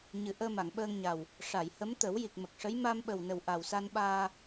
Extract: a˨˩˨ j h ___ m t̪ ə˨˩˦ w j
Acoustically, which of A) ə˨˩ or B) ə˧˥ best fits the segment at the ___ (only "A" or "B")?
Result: B